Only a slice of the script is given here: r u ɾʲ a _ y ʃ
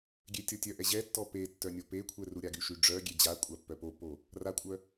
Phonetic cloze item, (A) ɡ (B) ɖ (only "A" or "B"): A